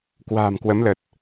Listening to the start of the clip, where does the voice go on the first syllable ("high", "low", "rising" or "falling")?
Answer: low